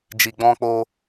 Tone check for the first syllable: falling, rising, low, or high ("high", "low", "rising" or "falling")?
low